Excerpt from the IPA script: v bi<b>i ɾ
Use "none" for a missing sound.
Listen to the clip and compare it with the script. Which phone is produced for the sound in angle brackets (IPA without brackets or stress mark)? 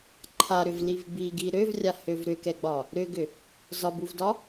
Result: ɡ